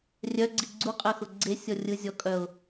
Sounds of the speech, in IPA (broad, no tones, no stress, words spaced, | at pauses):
rʲœɡ͡ǀi ɡ͡ǀuqʼɜxʊ ɡ͡ǀesʲɔ rʲɯ zʲɔkʼœʊ̯